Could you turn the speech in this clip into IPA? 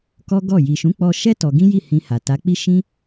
k ɔ˦ ɡ ɔ˦˨ j i˨ ʃ ũ˨˦ k͡p ɔ˧ ʃ ɛ˦ t ɔ˧ ɡ ĩ˦ j i˦˨ h ĩ˧ h a˨ t a˨˦ k͡p i˦ ʃ ĩ˦

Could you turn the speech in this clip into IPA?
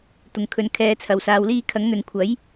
t̪ ʊ˨ ŋ kʰ ɵ˧ n kʰ ɛː˧ t͡sʰ ɐ˨˧ w s aː˧ w l iː˥ kʰ ɐ˨˥ ŋ n̪ ɵ˨ n kʷʰ ɐ˨˥ j

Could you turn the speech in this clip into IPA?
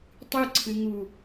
tˤ ɨ ǀʰ ɨ ŋ u

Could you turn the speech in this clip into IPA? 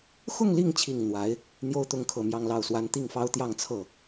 x ʊ˥˧ ŋ l i˥˩ ŋ t͡ɕʰ i˨˩ ŋ n̪ w a˧˥ ɪ̯ | n̪ j o˥ ʊ̯ t̪ ʊ˧˥ ŋ kʰ ɤ˨˩ m j ɑ˥˧ ŋ l ɑ˥˩ ʊ̯ s w a˥ n t̪ i˥˩ ŋ f ɑ˥ ʊ̯ t̪ j ɑ˥˧ ŋ t͡sʰ ɤ˥˩

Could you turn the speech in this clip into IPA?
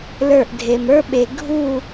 l ə˞˥˧ ʔ dʱ e˧ m ə˞˥ ɓ e˧ ɡʱ u˥˧

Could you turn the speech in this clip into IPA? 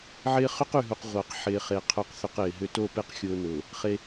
ʕ ɪː˦ χ ʏ˦ q y˨ ɦ u˨ q ʁʷ a˨ q ħ ɪː˨ χ e˨ qʰ œ˨ q θ ʏ˨ q ɪː˨ ɦ ʏ˦˨ t o˦˨ p e˦ q xʲ ʊː˦ n ʊː˨ | χ e˦

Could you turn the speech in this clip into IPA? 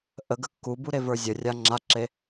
ʔ ə ɡ ə kː u b u ɾ e v ə˞ zʲ ə rʲ a ŋ͡ǁ a ǁ e

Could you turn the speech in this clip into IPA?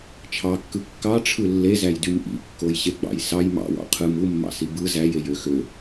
t͡ʃʰ ɑ kː ɯ kː ɑ ʈ͡ʂʰ ɯ lː e z æ j d y m ʔ ḭ kː o j ɕ e ɡ͡b ɑ̰ j s ɑ j m ɑ̰ w ɑ̰ qʰ ɯ m u mː ɑ̰ s i b ɯ z æ j e j ø x ø

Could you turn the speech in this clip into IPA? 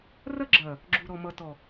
r ɐ˦ ɡ͡ǁ ɐː˨ | ɡ͡ǁ u˨ ɾ ɔ˨ m ʌ˨ t ɔ˨

